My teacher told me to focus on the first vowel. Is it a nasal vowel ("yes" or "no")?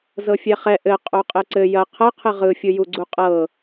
no